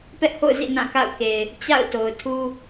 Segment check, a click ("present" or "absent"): absent